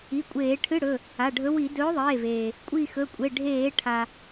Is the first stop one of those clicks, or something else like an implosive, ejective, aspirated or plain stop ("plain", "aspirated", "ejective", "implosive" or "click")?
ejective